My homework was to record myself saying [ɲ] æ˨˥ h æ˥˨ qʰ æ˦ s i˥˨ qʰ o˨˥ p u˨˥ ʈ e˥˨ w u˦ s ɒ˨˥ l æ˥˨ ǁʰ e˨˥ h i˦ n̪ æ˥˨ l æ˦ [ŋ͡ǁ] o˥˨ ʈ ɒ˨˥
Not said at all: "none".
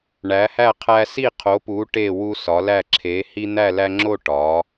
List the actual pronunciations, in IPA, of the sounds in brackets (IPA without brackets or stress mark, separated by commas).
ɳ, ŋ͡ǁ